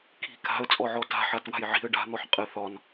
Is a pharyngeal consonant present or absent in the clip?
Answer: present